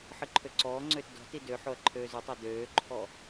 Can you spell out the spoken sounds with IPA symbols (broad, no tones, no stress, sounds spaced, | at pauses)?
ħ ɨ ǃʰ ø ǀ ɔː ŋ͡ǀ øː t d ɔ̤ t i d ø ħ o ɐ̯ ǃʰ øː z ʏ tˤ ɑ d øː ǃʰ ɔ